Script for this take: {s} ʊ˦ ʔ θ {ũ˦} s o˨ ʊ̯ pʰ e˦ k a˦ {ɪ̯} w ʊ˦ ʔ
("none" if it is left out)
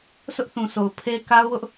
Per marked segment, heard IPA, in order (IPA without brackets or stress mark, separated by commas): s, ũ˨, ʊ̯